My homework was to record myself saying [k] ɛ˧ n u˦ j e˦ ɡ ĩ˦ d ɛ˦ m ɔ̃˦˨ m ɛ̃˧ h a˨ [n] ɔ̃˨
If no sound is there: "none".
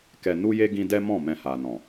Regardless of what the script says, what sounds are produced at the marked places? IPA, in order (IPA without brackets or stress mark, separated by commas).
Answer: k, n